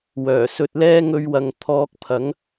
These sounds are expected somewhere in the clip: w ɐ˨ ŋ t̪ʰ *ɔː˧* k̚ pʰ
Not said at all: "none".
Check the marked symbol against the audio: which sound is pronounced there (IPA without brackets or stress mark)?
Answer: ɔː˧